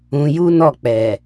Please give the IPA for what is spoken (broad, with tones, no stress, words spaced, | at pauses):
ũ˧ ju˦nɔ˦˨k͡pɛ˨